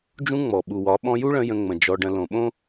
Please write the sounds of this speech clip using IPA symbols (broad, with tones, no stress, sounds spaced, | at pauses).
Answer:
d͡ʒ ũ˦ ŋ͡m ɔ˨ ɓ u˨ w ɒ˨˦ ɓ ɔ̃˧ j u˦ ɭ ə̃˧ j ə̃˧ ŋ͡m ə̃˨ d͡ʒ ɔ˧ ɖ ə̃˧ l õ˨ ɓ õ˦